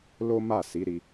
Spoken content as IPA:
l o˦ m a˦˨ s i˨˦ ɾ i˧

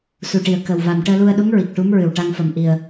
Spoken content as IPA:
s u˨˩ ʈ i˨˩ ə̯ k ə˨˩ w v a˨˩ m ʈ əː˧ l u˧ ə̯ ɗ u˧˥ ŋ ɹ i˨˩ k̚ ʈ u˧˥ m ɹ ɨ˨˩ w ʈ a˧ ŋ f ə˨˩ m ʔ i˨˩ ə̯

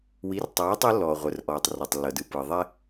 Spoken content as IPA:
w i˩˥ r tˤ æː˩˥ tˤ ɤ˩˥ lː ɔː˩ ʁʷ ə˩ r ʔ ɔː˩ tˤ r ɔ˩ tˤ lː ɤ˩ d ɯ˩ p ɯ˩ ðˤ ɛ˧

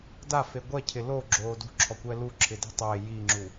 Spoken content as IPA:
d a f e ɡʷ ɛ cʰ ɪ l o ɡ͡ǁ oː d ṳ ǁʰ ɔ kʷ ɛ l u ǁʰ ɪ d i̤ tˤ ɪː j i ŋ͡ǁ u

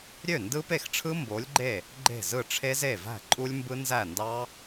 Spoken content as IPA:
ɾʲ ø˥˩ n d ɯ˦˥ p e˥˩ x ʈ͡ʂʰ ɯ˦˥ m b o˨˥ lʲ ɡ͡ǃ e˥˩ | ɡ͡ǃ e̤˥˩ z ɯ˥˩ ʈ͡ʂʰ e˦˥ z e˥˩ v æ̤˥˩ ǃʼ u˦˥ lʲ m b ɯ˦˥ n z æ˥˩ n d ɑ˦˥

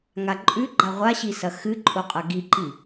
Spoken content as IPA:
ŋ a ǃʼ ʉ ɡ͡ǃ a ʁʷ a ɕ i s ɐ x ɨ ǃʼ o qʼ ɐ ɡ i ǃ i

